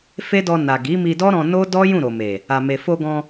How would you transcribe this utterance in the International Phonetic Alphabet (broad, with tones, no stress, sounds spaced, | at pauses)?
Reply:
f e˦ d ɔ˧ n a˨ ɡ i˨˦ m i˧ d ɔ˦ ɾ ɔ̃˧ n o˦ d ɔ˦ j ũ˦˨ ɾ o˨ m e˨ | a˨ m e˨ f o˧ ɡ ɔ̃˧